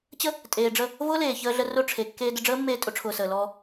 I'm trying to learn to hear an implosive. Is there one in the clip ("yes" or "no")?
no